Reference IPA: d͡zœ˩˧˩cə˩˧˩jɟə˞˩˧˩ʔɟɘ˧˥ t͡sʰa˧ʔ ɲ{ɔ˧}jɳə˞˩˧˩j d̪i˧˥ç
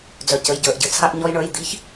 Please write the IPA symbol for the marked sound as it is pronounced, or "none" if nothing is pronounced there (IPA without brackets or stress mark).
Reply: ɔ˧